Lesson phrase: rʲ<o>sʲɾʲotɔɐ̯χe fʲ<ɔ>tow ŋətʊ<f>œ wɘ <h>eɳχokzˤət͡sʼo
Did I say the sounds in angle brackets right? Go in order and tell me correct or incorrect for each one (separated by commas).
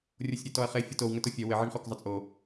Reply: correct, correct, incorrect, incorrect